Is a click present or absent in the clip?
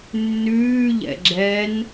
present